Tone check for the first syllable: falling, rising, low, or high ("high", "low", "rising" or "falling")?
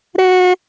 high